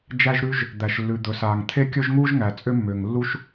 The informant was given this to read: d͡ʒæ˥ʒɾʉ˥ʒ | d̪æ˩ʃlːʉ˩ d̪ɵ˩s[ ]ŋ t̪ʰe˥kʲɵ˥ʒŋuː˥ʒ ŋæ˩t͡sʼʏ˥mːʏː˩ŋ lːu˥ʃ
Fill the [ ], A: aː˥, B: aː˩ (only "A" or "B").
B